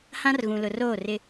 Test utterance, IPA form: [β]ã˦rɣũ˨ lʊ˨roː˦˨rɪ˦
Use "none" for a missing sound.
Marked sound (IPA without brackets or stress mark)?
h